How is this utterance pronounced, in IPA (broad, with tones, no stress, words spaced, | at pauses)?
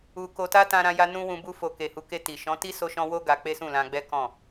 u˨ko˨ta˧ tã˧ɾã˧ja˧ nũ˦wũ˧ bu˦fo˧ ke˨hu˨˦ke˧ti˨ ʃɔ̃˨˦ti˦so˧ʃɔ̃˧ wo˦ ɡa˧k͡pe˦sũ˦˨lã˧ ɡ͡bɛ˦kɔ̃˦˨